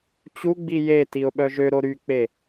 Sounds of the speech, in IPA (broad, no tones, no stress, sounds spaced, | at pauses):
t͡ɕ u ɡ͡b i j e t i ʊ̯ ɓ œ ʒ ø ɾ o ɾ y k͡p e